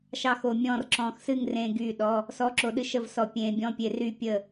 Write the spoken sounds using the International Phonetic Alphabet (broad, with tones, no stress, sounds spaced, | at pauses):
ʃ ɑ˥˨ x o˧ mʲ ɔ̃ː˥˨ r ǁ ɔ̃ː˧ x s ɨ˥˨ ŋ r ẽː˧ ɡ yː˥˨ ɗ ɔ˧˥˧ | s ɔ˧˥˧ ǁ o˧ ɗ ɨ˧˥˧ ʃ ə˥˨ v s ɔ˧ pʲ ẽː˧ bʲ ɔ̃˧˥˧ pʲ e˧ r y˥˨ pʲ ə˥˨